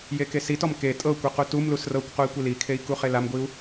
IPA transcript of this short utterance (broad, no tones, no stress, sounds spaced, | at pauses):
j e k e s i t ɔ m k e tʼ ɤ kʷ i q u t u m l u s r ɤ kʷ q u i̯ kʷ i l i kʰ e i̯ k u χ e l a m ɡʷ i u̯